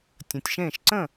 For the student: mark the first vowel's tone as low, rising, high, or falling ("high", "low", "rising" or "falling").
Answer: low